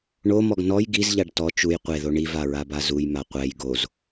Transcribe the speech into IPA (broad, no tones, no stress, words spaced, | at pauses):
ɳomɔɡ nɔj ɡizʎaɖ tɔ t͡ʃuj qʷeðo ɳivaɹaba zujma qʷɛj ɡoz